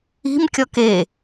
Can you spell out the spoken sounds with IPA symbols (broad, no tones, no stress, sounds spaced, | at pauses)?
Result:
i̤ m kʲ ɔ k e